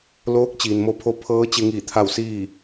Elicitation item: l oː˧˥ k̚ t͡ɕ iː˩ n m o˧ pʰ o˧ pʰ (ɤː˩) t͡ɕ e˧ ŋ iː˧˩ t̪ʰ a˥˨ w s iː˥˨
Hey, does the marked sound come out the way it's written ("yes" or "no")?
no